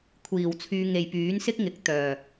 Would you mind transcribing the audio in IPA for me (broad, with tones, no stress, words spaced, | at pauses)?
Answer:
kʷʰiː˨˩wt͡sʰyː˧ ŋe˨jpyː˨˥nsɪ˥k̚ŋɪ˨k̚ t̪œː˨˩